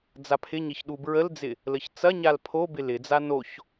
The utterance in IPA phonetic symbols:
d͡zapʰɪɲɪç ɗubɹəld͡zɪ | ləçt͡sɐɲal pʰobɪ lɪd͡za noç

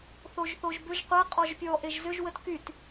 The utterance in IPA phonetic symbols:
θoʒθoʒbʏʒ qʷe qʼɔʒpʲɔ ʔeʒzʏʒ wətkyt

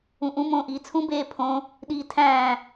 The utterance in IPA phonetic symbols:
ũʔũ mõːʔiːt͡sʰũ beːpʰõ | ɗiːtʰæ̃ː

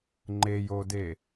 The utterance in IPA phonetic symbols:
ŋ͡ǃejode

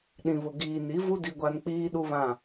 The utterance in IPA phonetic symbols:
ɗĩ˨βʊ˨ ɡiː˨ni˨˦vu˦ di˦ɡʷa˦n k͡piː˦ɗu˦βã˦˨

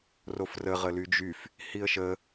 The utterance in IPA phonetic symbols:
rofrə ʁəlyd͡ʒyf | hiə̯ʃə

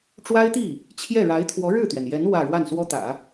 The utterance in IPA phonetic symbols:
ʈ͡ʂwa˥ɪ̯t̪i˥˩ | t͡ɕʰjɛ˥˩ɻa˧˥ɪ̯ t̪ʰwɔ˧˥ɻɻ̩˥˩t̪ɥɛ˩njɛ˧˥n wä˥˧ ɻwa˥˩nswɔ˥t̪ä̰˨˩˦

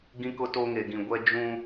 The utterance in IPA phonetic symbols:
ɡĩ˦kʊ˦ to˦ŋe˨ɡĩ˨ ɡʷɛ˦d͡ʒũ˦

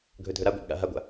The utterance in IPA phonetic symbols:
ɡʱɵdʱɵɾaɡʷa̰b ɠa̰ɦaɡʷa̰

